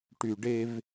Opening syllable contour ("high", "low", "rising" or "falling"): low